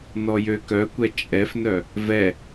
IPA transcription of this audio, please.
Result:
n ɔ j ø k œ kʷ ɛ t͡ʃʼ ɛ f n œ | v ɛ

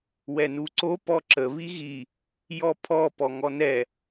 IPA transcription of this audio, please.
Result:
w ɛ n u ǀ o p ɔ ǁ ə β i ɣ i | j ɔ pʰ ɔ p ɔ ŋ ɔ n ɛ

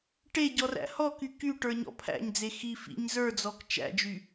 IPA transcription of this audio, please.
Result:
ʈ e ɟ ɔ r æ̰ h ɔ k y k y ʈ ə˞ ɲ ɔ̰ pʰ æ̰ ɲ d͡z e x i f ḭ ɲ z ə˞ d͡z ɔ k t͡ʃ æ̰ d͡ʒ y

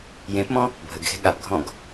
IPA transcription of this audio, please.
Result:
j ẽ p m ɔ̃ | bʱ ə ɡ x e̤ ɠ a p ɡʱ ɔ̃ ɡ

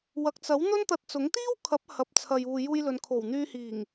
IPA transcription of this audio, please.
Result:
w ɐ˨ k̚ t͡s ɐ˨˥ w n̪ ɵ˥ n t̪ ɐ˧ t̚ t͡s ʊ˨˥ ŋ t̪ iː˥ w kʰ ɐ˨˥ p̚ h ɐ˨ p̚ t͡sʰ ɐ˨ j uː˨ j uː˧ j l ɵ˨ n kʰ o˨˩ w n̪ yː˧ h iː˨˩ ŋ

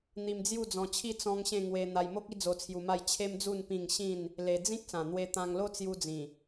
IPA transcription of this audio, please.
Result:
n̪ i˧ m d͡z j u˥˧ d͡z ɔ̃˧ t͡ɕʰ i˥˧ t͡s ɔ̃˦ ŋ ɕ ẽ˥˧ ŋ w e˧ n̪ a˧ j m o˦ k̚ i˦ d͡z o˧ t͡sʰ j u˧ m a˥˧ j t͡ɕʰ e˦ m d͡z u˥˧ n p ĩ˥˧ ŋ ɕ ĩ˥˧ n | l e˧ d͡z ĩ˦ k̚ s ã˨˩ n̪ w e˧ t̪ ã˧ ŋ l o˦ t͡s j u˧ d͡z ĩ˨˩

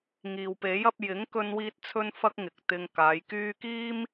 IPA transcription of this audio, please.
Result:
ŋ iː˨ w p e˨˥ j ɐ˨˥ p̚ j ɪ˨˥ ŋ k ɵ˧ n w iː˧ t̚ t͡sʰ ɵ˥ n f ɐ˥ k̚ ŋ ɪ˨ k̚ t̪ ɪ˧ ŋ k aː˨˧ j k yː˥ k iː˥ m

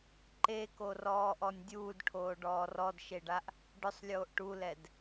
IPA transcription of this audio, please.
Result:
ǃ e k o r ɔː ʔ ɔ nʲ dʲ uː d ʈʰ oː ɖ ɔː r ɔ d ʃ e ɖ a ʔ | ɖ ʊ sˤ lʲ oː ʔ ʈ u l ɛ d

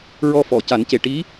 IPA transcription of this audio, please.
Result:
ɹ ɔ˧ f ɔ˨˩˨ c a˨˩˦ n c e˨˩ ʈ i˧˥

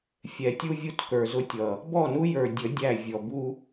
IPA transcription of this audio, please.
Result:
fʲ ɛ˨ tʲ u˦ vʲ u˦ t k ə˞˨ z ʊ˦ tʲ ʌ˨ | b ɔ˦˨ n u˦ j ə˞˨ dʲ ə˨˦ dʲ æ˦˨ vʲ ɔ˨ b u˦

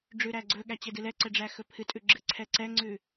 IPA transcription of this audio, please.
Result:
ɖ͡ʐ ʉ ɾ æ ɡ͡ǀ ɵ ɠ æ t͡ɕ e d ɨ l ɛ ǀ ɛ ɖ͡ʐ æ x ɵ pʰ ɨ tʼ ʉ ɡ͡ǁ ɨ ǀʰ ɛ ǀ ɛ ŋ͡ǀ ʉ

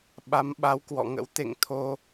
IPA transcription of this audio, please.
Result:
ɓ a˨˦ m ɓ a˨˦ w k w ɔ̰˧˨ ŋ ə̰˧˥ w t̪ ḛ˧˨ ŋ t̪ʰ o˧

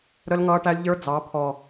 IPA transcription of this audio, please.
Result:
ɾ ə˦ l ŋ ʌː˦ ʈ æ˦ lʲ ʎ ə˞˦ d͡z ɑ˨˦ pʰ ɔ˨

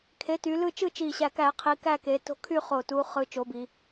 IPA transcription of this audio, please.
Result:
kʰ e˩˥ t y˩˧ l ɯ˦˨ t͡ʃ ɯ˦˨ t͡ʃ i˨˩ ɕ æ˨˩ k æ˧˩˧ qʰ i˩˧ k æ˦˨ k e˩˧ t o̤˦˨ kʰ y˦˨ χ o˨˩ t u˩˧ χ ɯ˩˧ t͡ʃ o˩˥ b i˩˧

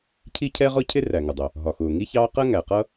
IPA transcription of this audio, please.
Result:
cʰ i˥ cʰ ɛ˥ ʁ ɔ˥ cʰ ɪ˥ r æ˩ ŋ ʊ˩ dˤ ʊ˩ | ɦ ɒ˩ x ʊː˩ ŋ i˥ ç ɑː˥ q ɜ˥ ŋ æ˩ q ʌ˥

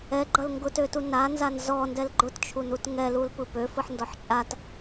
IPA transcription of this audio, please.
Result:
ɛ ɡ͡ǃ ʌ l ŋ ɡ ʊ t ø t u n a n z a n z ɔ n d ɛ l ɡ͡ǃ ʊ t t͡ʃʰ u n u t ŋ ɛ l u l p ɯ p ø f ɯ ħ n d ɔ ħ t͡ʃʼ a t

